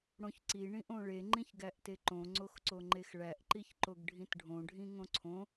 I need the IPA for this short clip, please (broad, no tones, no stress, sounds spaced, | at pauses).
ɽ õ ç ǀ i ɳ ĩ ʔ õ ɭ e ŋ͡ǃ ĩ ç ɡ æ ʔ t e ǃ õ ŋ͡ǀ o x ǀ o ŋ͡ǃ e x ɭ æ ʔ ǃ i ç ǃ o ɡ ɖʱ ĩ t ɖʱ õ ɖʱ ĩ ŋ õ ǀʰ õ